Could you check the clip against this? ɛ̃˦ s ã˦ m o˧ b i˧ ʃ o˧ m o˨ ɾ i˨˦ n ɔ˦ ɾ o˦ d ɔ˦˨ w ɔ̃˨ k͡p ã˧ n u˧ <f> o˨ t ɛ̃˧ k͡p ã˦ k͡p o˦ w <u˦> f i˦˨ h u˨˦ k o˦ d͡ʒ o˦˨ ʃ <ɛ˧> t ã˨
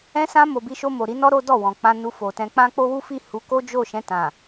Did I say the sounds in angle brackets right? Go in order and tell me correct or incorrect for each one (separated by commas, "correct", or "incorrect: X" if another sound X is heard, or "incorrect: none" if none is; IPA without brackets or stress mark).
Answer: correct, correct, incorrect: ɛ̃˧